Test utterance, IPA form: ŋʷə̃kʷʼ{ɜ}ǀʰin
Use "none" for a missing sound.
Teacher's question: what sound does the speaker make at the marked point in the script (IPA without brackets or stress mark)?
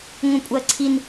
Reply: ɜ